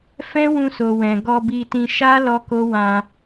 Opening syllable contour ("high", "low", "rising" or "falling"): high